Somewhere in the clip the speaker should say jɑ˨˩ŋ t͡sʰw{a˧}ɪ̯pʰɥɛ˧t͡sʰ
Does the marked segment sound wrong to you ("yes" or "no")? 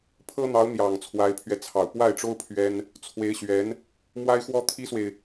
yes